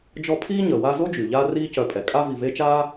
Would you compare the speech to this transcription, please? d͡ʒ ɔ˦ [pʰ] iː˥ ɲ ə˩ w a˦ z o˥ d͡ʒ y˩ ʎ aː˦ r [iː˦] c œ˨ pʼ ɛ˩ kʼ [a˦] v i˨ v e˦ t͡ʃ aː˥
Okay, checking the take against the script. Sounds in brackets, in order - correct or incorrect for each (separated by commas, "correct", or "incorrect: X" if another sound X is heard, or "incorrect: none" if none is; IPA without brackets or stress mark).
correct, correct, correct